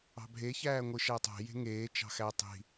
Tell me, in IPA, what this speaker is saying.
ɑ̤ bʱ e ç æː ŋʷ ɯ ʃ æ tˤ æ̤ j e̤ ŋ eː t͡ʃ ɑ̤ x æ tˤ i̤

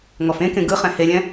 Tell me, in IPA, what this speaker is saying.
ŋ ɔ f ẽ k ẽ ɡ ɯ χ ɛ̃ h e lʲ ɛ̃

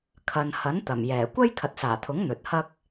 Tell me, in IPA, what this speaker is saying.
kʰ ɐ˨ n h ɐ˨˥ n t̪ ɐ˨˩ m j ɛː˨˩ kʷ ɐ˥ j kʰ ɐ˨ t̚ s aː˨˩ t̪ʰ ʊ˨˥ ŋ n̪ ɵ˨ t̚ h ɐ˥ k̚

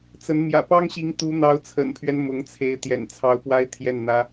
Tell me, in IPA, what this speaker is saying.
t͡s ə˧˥ n m j ä̰˨˩ p ɑ˥ ŋ ɕ i˧˥ ŋ t̪ u˧˥ n̪ ɑ˧˥ ʊ̯ t͡sʰ ə̰˨˩ n pʰ ɥ ɛ˦ n m ʊ˧˥ ŋ t͡sʰ e˧˥ ɪ̯ t̪ j ɛ̰˨˩ n t͡sʰ ɑ˧˥ ʊ̯ p w a˥ ɪ̯ t̪ʰ j ɛ˥˩ n n̪ ä˥

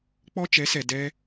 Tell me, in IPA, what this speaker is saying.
k͡p ɔ˦ t͡ʃ ɛ˨˦ s ɛ˨ d ɛ˦

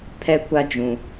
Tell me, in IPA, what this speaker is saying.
pʰ ɛ˦ kʷ a˦ d͡ʒ ũ˨

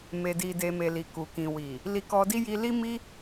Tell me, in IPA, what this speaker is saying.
m e˨ d i˨ d e˨ m e˨ l i˨ k u˨ k ĩ˨ w i˨ | l i˧ k ɔ˧ d i˦ j i˧ l i˦ m i˦

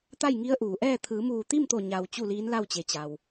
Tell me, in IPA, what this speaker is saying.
t̪ a˥˨ j ŋ i˧˥ ə̯ ʔ uː˩ ʔ ɛː˥˨ t̪ʰ ɯː˩˧ m uː˧˩ t̪ i˥˨ m t̪ o˧˩ ɲ a˩ w t͡ɕ u˥˨ l iː˧˥ n l a˥˨ w t͡ɕ e˩ t͡ɕ a˩ w

